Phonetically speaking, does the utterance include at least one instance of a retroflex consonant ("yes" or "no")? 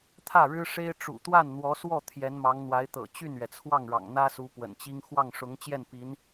yes